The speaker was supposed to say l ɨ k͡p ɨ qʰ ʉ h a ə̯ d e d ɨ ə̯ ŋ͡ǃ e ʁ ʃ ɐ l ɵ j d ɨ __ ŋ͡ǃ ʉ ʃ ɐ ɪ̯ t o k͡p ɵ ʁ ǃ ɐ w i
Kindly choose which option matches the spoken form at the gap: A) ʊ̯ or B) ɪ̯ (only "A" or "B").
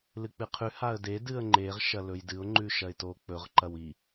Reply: A